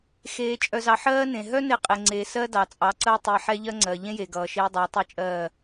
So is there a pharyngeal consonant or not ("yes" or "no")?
yes